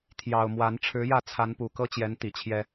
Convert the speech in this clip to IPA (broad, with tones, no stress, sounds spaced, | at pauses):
t̪ʰ j ɑ˨˩ ʊ̯ m w a˨˦ n ʈ͡ʂʰ ɻ̩˨˦ j ä˥˨ t͡sʰ a˨˦ n p u˨˩ k ɤ˦ t͡ɕ j ɛ˨˦ n t̪ i˨˩ t͡ɕʰ j ɛ˦